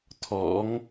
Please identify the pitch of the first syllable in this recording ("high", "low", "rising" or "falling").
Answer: rising